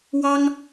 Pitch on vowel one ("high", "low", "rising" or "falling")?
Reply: high